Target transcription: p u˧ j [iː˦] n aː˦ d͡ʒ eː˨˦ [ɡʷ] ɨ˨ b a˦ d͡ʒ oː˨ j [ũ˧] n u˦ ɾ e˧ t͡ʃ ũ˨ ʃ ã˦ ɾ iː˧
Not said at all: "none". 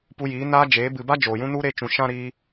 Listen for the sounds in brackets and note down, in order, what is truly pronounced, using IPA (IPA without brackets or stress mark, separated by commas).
iː˨˦, b, ũ˦